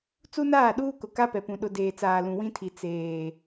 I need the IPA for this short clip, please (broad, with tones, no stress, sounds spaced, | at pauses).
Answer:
t͡s u˦ n aː˦˨ ɗ uː˦ k ʊ˨ k a˦ p ɛ˨ p ũ˨ ɗ ʊ˨ d eː˨ t͡s aː˨ l ũ˨ w ĩ˦ tʰ i˨ t͡s eː˨